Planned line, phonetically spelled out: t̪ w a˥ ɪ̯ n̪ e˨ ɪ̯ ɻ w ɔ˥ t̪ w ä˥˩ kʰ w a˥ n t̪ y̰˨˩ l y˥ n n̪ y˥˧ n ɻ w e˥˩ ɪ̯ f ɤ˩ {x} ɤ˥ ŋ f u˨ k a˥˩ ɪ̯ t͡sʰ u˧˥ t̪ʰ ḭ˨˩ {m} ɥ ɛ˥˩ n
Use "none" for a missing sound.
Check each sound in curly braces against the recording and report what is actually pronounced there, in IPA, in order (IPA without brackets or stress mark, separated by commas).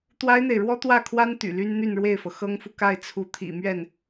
x, m